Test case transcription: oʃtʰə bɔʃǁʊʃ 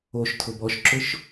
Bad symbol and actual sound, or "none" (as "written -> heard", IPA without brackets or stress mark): ə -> ʊ